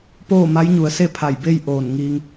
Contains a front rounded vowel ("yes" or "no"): no